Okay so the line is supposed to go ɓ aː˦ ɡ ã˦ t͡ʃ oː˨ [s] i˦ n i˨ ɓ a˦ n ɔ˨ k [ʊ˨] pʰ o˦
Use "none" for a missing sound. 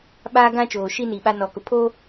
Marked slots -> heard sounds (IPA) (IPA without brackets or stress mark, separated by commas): ʃ, ʊ˨